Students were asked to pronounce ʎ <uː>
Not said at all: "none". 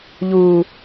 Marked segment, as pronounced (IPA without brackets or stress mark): uː